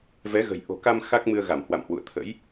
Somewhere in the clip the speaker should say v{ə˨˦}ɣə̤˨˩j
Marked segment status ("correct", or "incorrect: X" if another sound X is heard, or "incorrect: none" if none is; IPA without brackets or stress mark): incorrect: ɛ˨˦